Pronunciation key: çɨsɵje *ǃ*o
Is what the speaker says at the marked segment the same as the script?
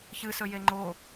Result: no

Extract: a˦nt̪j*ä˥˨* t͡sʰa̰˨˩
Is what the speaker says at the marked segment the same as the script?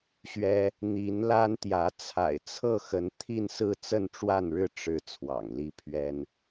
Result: no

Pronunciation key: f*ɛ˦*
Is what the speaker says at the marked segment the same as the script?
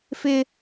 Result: no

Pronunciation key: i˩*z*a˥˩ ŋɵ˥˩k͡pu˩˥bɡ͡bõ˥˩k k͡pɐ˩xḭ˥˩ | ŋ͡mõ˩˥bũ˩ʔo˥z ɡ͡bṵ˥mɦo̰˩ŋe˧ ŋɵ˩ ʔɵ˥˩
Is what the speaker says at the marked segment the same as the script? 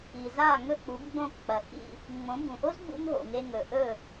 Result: yes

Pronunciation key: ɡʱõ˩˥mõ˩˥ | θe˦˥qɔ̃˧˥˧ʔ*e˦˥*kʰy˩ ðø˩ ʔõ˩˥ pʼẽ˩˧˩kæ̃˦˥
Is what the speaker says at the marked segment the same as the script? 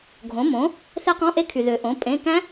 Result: yes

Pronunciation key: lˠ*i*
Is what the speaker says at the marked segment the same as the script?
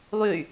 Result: no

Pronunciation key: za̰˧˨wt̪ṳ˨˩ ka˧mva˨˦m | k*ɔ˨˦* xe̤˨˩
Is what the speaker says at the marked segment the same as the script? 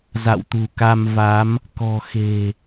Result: no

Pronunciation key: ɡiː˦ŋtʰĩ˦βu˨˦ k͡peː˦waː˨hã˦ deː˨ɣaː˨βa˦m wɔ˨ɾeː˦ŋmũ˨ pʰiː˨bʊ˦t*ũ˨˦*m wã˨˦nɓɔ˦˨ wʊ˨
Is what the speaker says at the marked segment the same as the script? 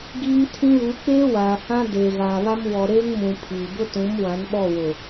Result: yes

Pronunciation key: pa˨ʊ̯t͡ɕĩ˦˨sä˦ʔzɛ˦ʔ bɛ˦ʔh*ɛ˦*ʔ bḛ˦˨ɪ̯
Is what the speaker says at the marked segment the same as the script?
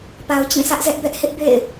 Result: no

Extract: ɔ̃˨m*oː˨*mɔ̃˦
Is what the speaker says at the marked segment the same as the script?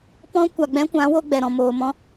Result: yes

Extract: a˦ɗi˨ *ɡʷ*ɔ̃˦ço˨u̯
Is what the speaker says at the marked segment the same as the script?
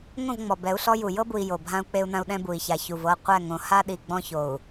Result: no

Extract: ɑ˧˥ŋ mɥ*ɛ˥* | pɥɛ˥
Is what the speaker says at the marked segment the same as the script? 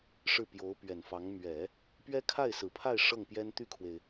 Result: no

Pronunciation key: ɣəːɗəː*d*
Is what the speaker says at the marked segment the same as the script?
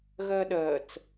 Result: no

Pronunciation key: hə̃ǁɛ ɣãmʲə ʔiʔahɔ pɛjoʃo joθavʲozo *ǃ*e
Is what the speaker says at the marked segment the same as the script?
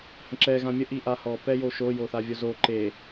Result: yes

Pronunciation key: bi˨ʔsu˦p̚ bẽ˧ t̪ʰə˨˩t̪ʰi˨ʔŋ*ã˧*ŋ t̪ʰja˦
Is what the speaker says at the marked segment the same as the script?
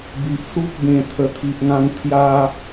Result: yes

